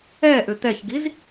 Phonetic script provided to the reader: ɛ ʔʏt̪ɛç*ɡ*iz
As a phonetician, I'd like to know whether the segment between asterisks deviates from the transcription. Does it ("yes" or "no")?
no